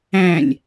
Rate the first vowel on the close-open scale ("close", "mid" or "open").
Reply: open